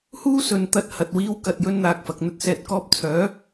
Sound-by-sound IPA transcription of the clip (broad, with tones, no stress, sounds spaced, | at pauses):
h uː˥ s ɵ˧ n t̪ ɐ˧ t̚ h ɐ˨ t̚ w iː˧ w k ɐ˧ t̚ j ɵ˥ n n̪ aː˧ k̚ f ɐ˨ k̚ n̪ ɵ˧ t̚ s ɛː˨ t̚ k ɔː˧ p̚ t͡sʰ œː˨˥